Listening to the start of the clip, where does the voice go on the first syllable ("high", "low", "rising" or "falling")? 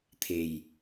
low